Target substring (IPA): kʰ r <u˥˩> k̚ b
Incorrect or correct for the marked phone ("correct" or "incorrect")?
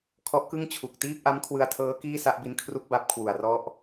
correct